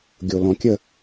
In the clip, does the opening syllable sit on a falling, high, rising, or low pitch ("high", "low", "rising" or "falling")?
low